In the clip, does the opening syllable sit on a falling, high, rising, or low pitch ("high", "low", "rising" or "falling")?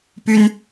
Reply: high